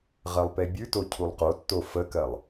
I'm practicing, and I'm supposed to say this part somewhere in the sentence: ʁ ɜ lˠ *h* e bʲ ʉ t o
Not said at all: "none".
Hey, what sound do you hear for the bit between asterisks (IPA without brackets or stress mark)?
p